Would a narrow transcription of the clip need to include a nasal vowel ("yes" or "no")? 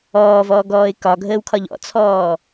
no